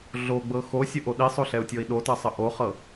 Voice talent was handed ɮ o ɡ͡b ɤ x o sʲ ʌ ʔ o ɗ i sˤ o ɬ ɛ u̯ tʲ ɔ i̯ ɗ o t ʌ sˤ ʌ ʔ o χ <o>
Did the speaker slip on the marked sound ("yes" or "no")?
yes